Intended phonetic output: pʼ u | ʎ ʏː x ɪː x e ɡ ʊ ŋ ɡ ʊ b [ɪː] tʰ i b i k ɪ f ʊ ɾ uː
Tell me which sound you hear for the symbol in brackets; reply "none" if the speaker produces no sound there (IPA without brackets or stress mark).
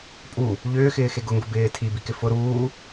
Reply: ɪː